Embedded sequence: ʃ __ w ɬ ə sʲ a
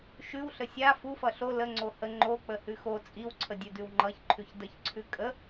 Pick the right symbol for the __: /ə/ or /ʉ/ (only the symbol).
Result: ʉ